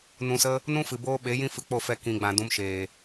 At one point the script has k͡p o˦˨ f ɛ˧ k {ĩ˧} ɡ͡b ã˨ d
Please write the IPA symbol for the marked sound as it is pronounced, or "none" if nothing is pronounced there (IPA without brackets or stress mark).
ĩ˨